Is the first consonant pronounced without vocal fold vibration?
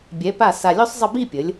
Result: no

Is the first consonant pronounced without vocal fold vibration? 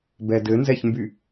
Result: no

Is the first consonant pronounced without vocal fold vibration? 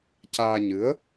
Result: yes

